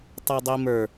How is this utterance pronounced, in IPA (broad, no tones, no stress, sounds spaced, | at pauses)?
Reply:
tˤ ə˞ dˤ i m ə˞